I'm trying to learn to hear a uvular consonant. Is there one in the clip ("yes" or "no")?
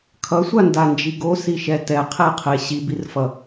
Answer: yes